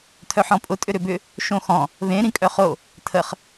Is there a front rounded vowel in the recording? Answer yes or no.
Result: yes